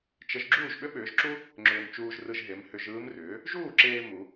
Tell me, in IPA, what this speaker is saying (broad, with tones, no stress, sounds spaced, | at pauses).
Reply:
t͡ʃ ə˧˥ ʒ ɡ͡ǁ uː˥˩ ʒ ɓ ʏ˥ ɓ ʏː˩˥ ʒ ǁ u˥ | ŋ͡ǁ ʏː˧ m t͡ʃ uː˧ ʒ r ɯ˧ ʒ ɦ e˩˥ m h ʏ˧ ʒ ɯː˧˥ m r ʏː˩˥ | ʒ uː˥˩ ǁ eː˧ m u˩˥